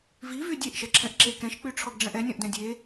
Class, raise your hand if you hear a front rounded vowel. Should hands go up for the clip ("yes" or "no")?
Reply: yes